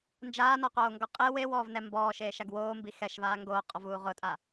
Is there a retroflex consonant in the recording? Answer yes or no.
no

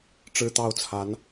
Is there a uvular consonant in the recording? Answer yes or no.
no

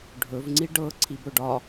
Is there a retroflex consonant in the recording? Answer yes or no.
yes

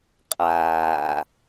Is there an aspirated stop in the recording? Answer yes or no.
no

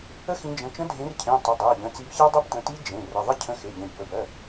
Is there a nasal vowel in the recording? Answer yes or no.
yes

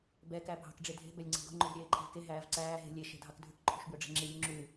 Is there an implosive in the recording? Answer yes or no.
no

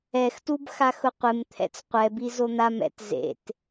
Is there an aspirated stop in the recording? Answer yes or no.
yes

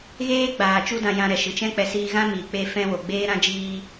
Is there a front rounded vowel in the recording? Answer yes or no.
no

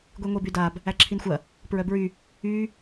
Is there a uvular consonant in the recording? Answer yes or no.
no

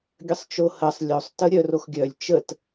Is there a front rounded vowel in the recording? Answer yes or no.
yes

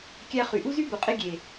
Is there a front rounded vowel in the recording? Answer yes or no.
yes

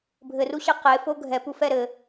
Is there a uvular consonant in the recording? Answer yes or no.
yes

